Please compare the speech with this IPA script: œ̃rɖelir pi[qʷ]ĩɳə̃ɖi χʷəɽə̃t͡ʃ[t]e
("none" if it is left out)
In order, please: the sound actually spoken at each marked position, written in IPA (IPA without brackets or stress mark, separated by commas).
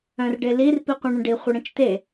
qʷ, t